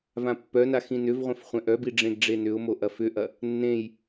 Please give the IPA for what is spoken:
vãpːœna xĩnʏvʁʷẽf χʷɛ̃ʔœbi ɖ͡ʐẽɡɖ͡ʐenʏʊ̯mo ʔɐfʏʔɐ | nːẽj

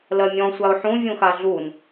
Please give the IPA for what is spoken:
lɜmʲɔ̃ sʷaʊ̯ħũ vʲũxaɮun

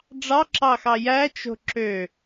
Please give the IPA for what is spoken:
ɖ͡ʐɑǁɑxɑ jæt͡ʃo̤ ǁø

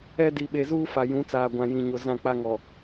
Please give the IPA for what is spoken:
ɛ˦ di˨ɓe˨zuː˦ fa˨jũ˨˦t͡saː˨ ɡʷã˨jĩ˨ɲo˨ zã˦˨ k͡pa˦ŋɔ˨

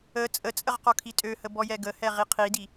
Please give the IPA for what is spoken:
ə t͡sʼət͡sʼəʁqɔkʰi tʼøhəbɔjɛ ɡəhɛʁi qʰidi

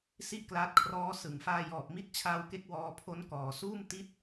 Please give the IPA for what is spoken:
si˥˩ʔklaː˦˥t̚kʰrɔː˦˥ sɯ˩˦ŋfaː˧ jɔː˨˩p̚mi˦˥t̚t͡ɕʰaː˧wke˦˥k̚ wɔː˧pʰo˦˥nkɔː˩˦ suː˥˩m ti˦˥t̚

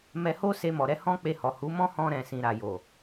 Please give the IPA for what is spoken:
mɛ˧ho˦ se˧mɔ˨ɾɛ˧ hɔ̃˦k͡pe˧hɔ˨ hu˨˦mɔ̃˦hɔ̃˧ ɾɛ̃˨sĩ˨ ɾa˨jo˨

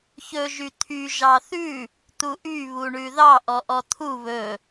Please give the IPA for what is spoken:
çɵ ʒyt̪ʰy ʒɑθʉ | t̪uʔy βuɳʉðɑ ʔɔʔɔt̪ʰu βɵ

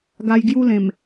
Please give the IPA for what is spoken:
ɡa˧jɡju˦lẽ˨˩m

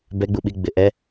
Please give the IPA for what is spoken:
bɛɡ͡buɓiɡ͡bɪ ʔɛ

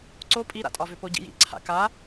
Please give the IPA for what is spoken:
ǀo pʼiɾa̰tʼɒvʏ poɟḭjḭ ǀʰa̰ka

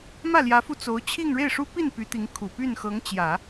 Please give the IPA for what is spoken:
mä˥˩ljä˧˥fu˧ t͡so˧˥ʊ̯t͡ɕʰi˥˧ŋ ɻe˥˩ɪ̯ʂu˥ pi˥˩npy˧˥ t̪i˧˥ŋkʰu˨˩ py˥˩nxɤ˧˥ŋt͡ɕjä˨˩˦

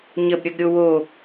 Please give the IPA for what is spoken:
ɲəbɾʲəɡɾʲo wo

